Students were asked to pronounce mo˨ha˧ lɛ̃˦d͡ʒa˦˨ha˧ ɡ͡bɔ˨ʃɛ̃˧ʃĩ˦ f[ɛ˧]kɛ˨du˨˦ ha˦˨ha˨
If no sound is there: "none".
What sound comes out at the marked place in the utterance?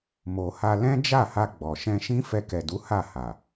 ɛ˧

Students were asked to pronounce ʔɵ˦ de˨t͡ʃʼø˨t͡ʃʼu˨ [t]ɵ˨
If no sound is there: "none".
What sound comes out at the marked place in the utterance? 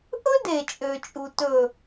t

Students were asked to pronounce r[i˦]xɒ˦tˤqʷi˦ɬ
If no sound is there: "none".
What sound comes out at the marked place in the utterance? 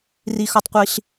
i˦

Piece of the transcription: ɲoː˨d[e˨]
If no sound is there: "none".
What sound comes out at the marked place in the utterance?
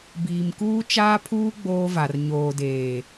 eː˨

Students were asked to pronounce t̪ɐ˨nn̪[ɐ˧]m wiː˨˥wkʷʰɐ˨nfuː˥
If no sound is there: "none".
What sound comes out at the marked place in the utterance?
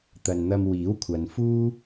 ɐ˧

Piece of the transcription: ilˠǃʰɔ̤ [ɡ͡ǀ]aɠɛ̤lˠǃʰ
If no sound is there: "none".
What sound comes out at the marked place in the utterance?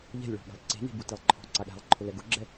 ǀ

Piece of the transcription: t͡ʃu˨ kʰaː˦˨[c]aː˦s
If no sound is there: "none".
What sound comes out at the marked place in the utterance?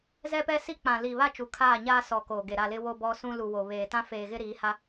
ɲ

